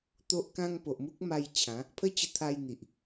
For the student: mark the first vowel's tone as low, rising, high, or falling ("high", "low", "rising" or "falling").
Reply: high